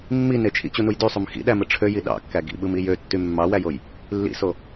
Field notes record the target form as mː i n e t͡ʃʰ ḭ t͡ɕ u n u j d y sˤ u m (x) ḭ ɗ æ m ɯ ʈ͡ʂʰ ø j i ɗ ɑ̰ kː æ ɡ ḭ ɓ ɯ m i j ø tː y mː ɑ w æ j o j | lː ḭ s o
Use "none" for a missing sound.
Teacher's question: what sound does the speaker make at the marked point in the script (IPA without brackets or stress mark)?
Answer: x